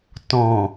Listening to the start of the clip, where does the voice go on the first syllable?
low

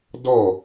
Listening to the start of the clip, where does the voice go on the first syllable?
falling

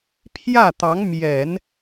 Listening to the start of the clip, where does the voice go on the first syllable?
falling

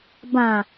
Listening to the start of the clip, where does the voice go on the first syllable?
low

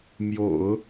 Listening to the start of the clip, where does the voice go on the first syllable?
low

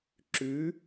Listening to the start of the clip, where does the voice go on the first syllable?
rising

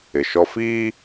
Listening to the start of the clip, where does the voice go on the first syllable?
low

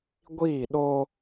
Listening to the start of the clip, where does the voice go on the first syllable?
falling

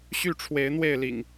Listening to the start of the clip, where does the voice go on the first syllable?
falling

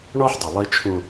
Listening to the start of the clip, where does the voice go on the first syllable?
high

